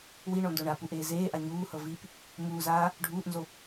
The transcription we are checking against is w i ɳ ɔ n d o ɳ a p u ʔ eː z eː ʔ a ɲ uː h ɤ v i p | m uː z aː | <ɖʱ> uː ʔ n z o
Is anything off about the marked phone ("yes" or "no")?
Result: no